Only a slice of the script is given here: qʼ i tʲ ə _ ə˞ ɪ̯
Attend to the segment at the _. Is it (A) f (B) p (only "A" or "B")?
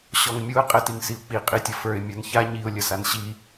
A